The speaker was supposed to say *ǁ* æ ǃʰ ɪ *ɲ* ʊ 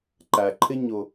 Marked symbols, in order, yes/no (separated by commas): no, yes